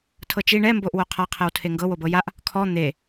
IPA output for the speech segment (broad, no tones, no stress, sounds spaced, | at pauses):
tʰ ɤ t͡ʃ i ɳ ɛ m b o ʔ w o qʰ a qʰ ɛ w tʰ e ŋ ɡ ɤ w o b ɤ j a ʔ | kʰ ɔ n̪ e